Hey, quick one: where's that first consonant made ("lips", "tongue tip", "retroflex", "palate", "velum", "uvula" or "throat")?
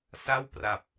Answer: tongue tip